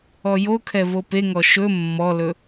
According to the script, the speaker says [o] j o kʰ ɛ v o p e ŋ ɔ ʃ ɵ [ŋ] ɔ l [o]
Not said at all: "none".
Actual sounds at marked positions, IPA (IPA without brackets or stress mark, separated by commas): ɔ, mː, ɵ